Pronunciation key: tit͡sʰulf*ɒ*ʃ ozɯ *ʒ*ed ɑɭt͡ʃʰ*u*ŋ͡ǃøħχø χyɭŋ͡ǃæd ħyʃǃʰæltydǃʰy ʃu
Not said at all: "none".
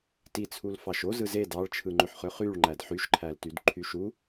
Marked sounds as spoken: ɑ, z, ɯ

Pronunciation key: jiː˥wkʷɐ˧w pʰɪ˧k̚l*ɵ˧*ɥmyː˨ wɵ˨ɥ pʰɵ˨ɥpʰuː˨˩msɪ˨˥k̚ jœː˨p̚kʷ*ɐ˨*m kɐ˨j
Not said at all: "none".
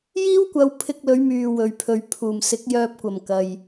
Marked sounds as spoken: ɵ˨˧, ɐ˨˩

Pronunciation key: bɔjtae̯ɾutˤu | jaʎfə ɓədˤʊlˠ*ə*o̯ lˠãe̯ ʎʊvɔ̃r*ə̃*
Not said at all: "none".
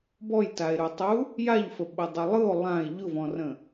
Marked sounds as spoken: ɯ, ə̃

